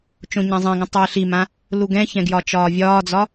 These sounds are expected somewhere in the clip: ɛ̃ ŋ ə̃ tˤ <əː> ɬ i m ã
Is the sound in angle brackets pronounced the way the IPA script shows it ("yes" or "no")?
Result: yes